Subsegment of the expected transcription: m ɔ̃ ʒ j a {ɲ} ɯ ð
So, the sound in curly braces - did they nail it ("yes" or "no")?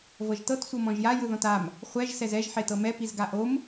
no